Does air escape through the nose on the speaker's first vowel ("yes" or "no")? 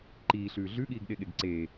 no